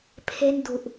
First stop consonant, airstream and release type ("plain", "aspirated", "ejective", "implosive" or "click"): aspirated